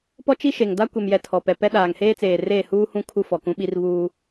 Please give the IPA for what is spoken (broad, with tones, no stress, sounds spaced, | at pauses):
p ɔ˦ t͡ʃ i˦ ʃ e˨ ŋ d a˦ kʷ ɛ˨ m j ɛ˨ tʰ ɔ˨ p ɛ˨ p ɛ˦ ɗ aː˨ ŋ h eː˦ t͡s eː˨ r eː˦˨ h uː˦ h ũ˦ kʰ u˦ f ɔ˨ k ũ˦ ɓ i˦ r β uː˦